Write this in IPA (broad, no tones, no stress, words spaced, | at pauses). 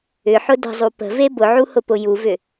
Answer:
ʏħʊ də̤zˤu pə̤ve bʊʕuhʊpʊ juvʏ